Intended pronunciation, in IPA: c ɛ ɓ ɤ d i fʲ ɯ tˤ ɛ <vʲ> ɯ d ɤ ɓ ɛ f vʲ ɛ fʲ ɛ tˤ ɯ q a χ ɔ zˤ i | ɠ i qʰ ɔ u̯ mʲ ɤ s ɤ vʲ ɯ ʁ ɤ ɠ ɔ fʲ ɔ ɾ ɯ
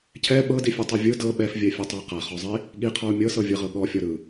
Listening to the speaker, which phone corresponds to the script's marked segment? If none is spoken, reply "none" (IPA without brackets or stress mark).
vʲ